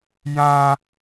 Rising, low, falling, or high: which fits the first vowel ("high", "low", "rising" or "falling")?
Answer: high